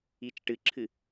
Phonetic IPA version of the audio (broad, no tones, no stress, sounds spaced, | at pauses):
i t͡ʃ ʈ ɨ ǁʰ ɨ